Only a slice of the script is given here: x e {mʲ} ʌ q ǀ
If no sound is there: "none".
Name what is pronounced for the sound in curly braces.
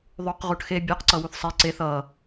bʲ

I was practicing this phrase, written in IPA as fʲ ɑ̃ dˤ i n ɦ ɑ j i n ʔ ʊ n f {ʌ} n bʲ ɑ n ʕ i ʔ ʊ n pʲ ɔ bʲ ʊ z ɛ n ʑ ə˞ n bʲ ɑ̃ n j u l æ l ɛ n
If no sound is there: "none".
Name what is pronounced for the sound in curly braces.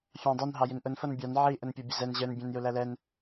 ʌ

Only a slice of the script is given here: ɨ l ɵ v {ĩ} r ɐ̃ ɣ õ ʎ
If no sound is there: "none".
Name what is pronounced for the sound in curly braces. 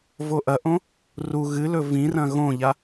ĩ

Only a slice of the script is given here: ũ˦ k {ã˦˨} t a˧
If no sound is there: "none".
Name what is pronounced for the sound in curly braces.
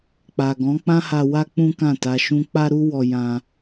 ã˦˨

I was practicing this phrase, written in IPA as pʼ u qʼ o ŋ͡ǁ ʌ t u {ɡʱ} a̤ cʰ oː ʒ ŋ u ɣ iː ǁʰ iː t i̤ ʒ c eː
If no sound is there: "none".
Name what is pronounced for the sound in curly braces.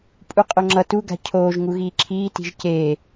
ɡ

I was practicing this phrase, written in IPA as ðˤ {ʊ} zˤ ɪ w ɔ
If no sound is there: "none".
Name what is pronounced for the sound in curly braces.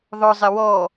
ʊ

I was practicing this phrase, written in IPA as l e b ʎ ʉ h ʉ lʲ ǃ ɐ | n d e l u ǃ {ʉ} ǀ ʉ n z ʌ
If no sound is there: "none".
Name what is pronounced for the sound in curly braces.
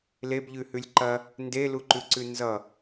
ʉ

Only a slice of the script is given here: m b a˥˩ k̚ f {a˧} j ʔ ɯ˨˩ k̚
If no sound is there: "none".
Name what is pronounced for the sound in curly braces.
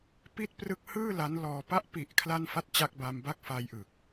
a˧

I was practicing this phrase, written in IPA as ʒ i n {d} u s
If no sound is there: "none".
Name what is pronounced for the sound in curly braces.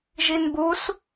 b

